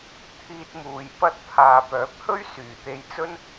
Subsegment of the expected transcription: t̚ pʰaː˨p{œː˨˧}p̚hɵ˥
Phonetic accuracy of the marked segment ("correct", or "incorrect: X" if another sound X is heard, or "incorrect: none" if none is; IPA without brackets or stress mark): incorrect: œː˨˥